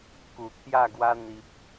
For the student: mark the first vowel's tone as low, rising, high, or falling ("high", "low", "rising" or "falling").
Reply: low